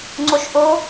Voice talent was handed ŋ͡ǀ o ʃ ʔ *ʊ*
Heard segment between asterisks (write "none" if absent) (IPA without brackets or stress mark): ʊ